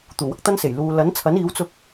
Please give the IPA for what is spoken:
t̪uː˨˩wɐ˥k̚t̪ɐ˥nse˨˩j luː˨lɐ˨˥nt͡sʰɐ˨˥n iː˨˥wt͡sʊ˧k̚

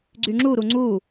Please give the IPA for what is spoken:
ɡ͡ǀyŋ͡ǁu ɾuŋ͡ǀu

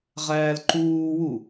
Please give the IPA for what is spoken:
ʁæːlǃuːwu

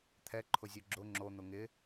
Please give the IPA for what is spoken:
t̪ʰɛǃʰʊzʲu ɡ͡ǁʊ ŋ͡ǁon̪ʊ ŋɪ

